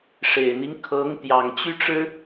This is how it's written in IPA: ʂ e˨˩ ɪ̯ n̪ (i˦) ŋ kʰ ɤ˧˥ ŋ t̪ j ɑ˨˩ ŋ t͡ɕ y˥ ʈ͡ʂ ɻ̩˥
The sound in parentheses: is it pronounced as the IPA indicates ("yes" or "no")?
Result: yes